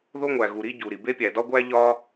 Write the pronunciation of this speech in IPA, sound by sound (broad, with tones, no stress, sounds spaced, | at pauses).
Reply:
ð o˥ ŋʷ æ˩ ɣ u˩ ɾ i˥ ɟ u˩ ɾ i˩ b e˥ pʲ æ˩ d ɒ˥ ɡʷ æ˥ ʎ ɒ˥